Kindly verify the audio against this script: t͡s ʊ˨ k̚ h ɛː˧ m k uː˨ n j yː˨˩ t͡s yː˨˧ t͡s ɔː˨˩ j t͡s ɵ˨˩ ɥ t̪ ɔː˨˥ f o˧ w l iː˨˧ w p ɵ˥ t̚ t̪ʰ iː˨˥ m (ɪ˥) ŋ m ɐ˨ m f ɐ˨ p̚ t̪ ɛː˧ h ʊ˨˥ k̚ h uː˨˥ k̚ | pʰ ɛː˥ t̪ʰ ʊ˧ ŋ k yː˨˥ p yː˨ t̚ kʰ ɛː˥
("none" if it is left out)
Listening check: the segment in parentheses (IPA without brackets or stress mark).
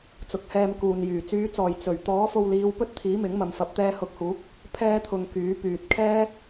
ɪ˨˥